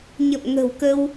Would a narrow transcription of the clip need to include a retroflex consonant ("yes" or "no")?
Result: no